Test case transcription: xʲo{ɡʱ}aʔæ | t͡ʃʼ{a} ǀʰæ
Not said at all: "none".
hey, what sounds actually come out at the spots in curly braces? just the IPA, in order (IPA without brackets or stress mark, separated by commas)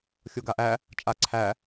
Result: ɡ, a